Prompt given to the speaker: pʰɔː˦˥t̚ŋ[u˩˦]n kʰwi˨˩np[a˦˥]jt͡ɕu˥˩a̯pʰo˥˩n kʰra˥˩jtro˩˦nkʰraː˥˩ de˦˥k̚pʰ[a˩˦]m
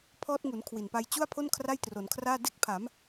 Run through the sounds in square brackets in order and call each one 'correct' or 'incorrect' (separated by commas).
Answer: correct, incorrect, correct